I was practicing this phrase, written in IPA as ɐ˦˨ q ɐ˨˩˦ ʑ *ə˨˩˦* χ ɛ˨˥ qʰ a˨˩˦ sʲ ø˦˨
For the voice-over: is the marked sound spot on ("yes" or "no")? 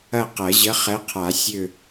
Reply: no